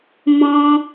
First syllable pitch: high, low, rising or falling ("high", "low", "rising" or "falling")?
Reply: high